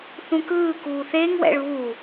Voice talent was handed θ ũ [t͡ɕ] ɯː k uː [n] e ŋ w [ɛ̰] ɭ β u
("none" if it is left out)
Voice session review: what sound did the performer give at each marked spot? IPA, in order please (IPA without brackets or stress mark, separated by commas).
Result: k, θ, ɛ̰